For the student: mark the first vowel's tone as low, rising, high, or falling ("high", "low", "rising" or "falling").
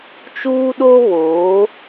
high